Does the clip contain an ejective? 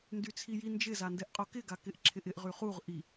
yes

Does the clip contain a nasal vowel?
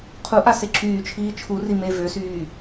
no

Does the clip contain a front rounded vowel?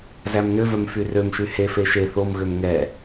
yes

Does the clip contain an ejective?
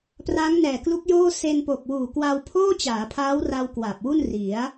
no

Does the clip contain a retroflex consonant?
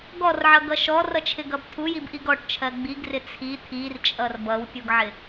yes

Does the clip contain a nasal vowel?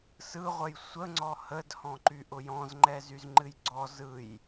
yes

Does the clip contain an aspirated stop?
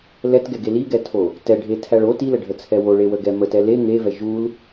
yes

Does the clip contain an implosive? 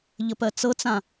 no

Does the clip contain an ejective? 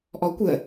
no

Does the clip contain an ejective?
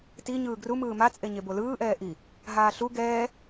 yes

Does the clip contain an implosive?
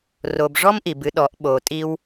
yes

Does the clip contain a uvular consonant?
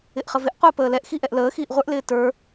yes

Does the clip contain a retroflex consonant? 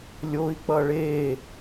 yes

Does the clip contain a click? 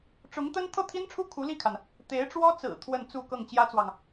no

